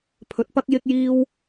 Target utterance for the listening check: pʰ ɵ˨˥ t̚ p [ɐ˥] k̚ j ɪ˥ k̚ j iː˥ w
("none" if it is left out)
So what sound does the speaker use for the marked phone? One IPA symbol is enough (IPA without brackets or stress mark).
ɐ˥